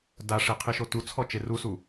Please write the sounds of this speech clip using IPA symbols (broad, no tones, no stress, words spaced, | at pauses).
daʂe qʰiʃotut͡sʰɔ t͡ʃerusu